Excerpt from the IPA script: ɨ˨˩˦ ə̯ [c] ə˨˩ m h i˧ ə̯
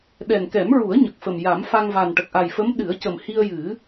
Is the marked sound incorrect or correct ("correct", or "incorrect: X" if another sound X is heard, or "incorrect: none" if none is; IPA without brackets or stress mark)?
correct